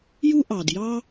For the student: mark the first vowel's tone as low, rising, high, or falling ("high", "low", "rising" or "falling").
high